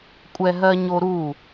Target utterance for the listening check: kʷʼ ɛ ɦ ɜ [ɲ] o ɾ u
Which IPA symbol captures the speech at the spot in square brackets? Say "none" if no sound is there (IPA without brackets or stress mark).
ɲ